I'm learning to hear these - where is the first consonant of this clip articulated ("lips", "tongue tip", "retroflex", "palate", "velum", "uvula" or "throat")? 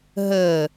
throat